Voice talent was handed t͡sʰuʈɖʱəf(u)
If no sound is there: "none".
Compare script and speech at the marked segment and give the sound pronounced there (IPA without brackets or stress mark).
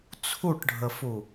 u